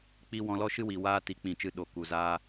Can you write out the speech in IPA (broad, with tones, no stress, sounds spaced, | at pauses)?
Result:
k͡p i˦ w ɔ̃˧ l ɔ˦ ʃ ɨ˦ w i˨ w aː˦ t i˨˦ k͡p ĩ˨ t͡ʃ ɨ˨˦ ɗ o˨ k u˨ z aː˧